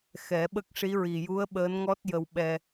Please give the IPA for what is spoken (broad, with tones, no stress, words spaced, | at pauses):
xɛ˨˩˦ɓə˦˥k̚ʂi˧˥ ɹi˨˩ju˧˥ə̯ ɓəː˧˥nŋɔ˦˥t̚jə˧w ɓɛ˧